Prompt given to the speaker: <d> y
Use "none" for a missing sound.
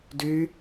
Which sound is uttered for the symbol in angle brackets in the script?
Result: d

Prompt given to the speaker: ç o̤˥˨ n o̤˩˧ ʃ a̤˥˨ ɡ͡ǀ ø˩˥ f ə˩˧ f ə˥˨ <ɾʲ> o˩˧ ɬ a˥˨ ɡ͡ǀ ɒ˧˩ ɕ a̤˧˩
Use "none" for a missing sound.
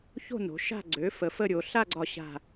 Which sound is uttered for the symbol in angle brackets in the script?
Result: ɾʲ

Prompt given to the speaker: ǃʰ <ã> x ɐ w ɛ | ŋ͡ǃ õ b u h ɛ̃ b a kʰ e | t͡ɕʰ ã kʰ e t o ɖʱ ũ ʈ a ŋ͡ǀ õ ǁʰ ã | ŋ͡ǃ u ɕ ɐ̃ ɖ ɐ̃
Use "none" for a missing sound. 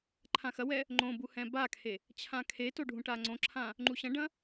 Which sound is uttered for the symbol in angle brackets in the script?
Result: ã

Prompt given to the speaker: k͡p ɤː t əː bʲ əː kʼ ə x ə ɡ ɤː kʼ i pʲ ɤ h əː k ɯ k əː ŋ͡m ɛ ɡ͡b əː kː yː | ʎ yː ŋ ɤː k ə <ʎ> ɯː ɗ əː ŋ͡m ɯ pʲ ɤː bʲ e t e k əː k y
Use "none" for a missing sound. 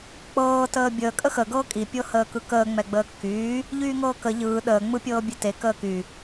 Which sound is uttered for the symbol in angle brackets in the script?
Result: ʎ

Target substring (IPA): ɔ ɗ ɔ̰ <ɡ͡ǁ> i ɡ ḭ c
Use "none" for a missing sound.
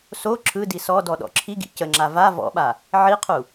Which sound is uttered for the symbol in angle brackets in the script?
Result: ǁʰ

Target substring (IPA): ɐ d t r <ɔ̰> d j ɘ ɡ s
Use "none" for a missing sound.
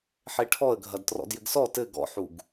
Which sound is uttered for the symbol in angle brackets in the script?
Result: ɔ̰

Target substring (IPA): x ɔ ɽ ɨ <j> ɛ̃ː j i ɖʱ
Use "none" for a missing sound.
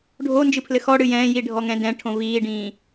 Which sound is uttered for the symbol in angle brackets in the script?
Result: j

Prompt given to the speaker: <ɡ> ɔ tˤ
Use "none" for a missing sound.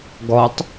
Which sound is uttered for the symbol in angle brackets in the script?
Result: ɡ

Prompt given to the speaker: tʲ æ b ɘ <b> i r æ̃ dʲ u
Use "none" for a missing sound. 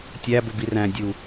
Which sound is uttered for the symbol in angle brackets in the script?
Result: b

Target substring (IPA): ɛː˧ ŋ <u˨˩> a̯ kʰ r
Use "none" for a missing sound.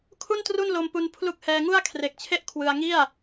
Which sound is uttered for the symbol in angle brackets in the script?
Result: u˥˩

